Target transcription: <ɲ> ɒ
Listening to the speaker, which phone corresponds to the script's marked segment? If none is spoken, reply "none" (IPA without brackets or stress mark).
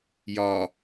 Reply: j